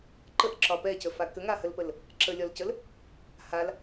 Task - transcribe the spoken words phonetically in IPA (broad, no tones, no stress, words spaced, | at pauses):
ǃəʔǁɒ pɛcəfa kəŋahəlpəl | ǁəlʲɒlcəl | hal